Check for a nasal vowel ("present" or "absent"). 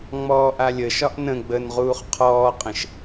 present